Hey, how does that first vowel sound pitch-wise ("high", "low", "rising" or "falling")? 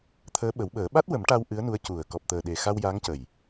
rising